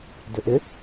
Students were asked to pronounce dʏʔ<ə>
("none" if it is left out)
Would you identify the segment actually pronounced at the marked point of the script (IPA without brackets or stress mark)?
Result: ɪ